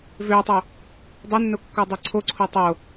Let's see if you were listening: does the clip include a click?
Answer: yes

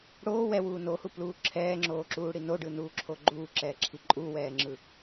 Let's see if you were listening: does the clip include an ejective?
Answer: yes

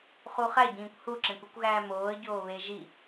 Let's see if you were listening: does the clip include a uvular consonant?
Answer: yes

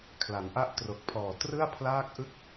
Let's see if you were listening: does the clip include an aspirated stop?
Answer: yes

